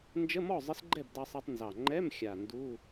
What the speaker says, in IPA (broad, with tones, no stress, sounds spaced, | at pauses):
n d͡ʒ ə˧˥˧ m ɔ˥˨ zˤ ə˧˥ s ɡ͡ǃ ɛ˥˨ b d ɑ˧ sˤ ɑ˧ tˤ n z ɑ˨˩ ŋ͡ǃ ɛ˧˥˧ m xʲ a˨˩ n d u˧˥˧